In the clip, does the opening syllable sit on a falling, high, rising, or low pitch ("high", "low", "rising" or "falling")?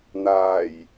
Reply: low